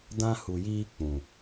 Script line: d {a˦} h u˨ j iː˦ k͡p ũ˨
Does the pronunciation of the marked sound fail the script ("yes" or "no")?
yes